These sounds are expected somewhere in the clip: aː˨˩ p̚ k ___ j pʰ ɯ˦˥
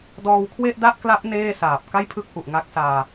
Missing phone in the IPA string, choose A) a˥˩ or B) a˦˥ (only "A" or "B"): A